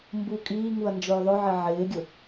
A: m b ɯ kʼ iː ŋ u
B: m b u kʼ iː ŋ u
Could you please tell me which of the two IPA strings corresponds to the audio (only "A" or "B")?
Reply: B